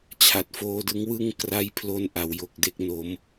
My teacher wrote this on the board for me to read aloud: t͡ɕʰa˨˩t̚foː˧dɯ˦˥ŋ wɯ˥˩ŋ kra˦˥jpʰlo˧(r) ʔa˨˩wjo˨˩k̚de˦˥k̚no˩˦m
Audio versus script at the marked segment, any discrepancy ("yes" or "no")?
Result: yes